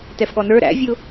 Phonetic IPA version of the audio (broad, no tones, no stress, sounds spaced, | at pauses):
t ɛ f ɠ ɔ n ə˞ ɾ æ̰ vʲ ʊ